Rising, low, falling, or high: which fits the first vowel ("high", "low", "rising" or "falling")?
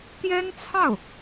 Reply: high